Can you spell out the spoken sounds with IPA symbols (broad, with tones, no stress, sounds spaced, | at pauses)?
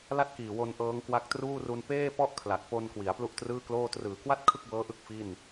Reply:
l a˥˩ t̚ k iː˨˩ w o˧ n ʔ ɤː˦˥ ŋ k w a˦˥ k̚ t r uː˥˩ r u˧ n p eː˥˩ p ɔ˥˩ ʔ kʰ l a˨˩ k̚ p o˧ n k w i˩˦ a̯ p l u˥˩ ʔ t r ɯː˥˩ k l oː˥˩ t r ɯː˩˦ k w a˥˩ t̚ kʰ ɯ˥˩ k̚ b ɤː˦˥ ʔ ɯ˦˥ k̚ f i˥˩ n